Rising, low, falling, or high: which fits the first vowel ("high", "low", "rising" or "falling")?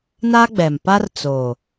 high